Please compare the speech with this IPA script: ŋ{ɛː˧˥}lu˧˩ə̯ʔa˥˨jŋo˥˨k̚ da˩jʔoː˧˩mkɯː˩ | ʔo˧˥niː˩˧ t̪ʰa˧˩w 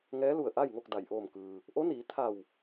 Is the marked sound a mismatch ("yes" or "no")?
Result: no